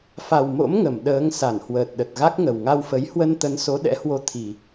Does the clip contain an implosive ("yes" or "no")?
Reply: yes